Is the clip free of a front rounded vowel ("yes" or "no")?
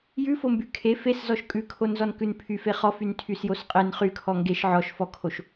no